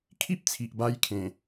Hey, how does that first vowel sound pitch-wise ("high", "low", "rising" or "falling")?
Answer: high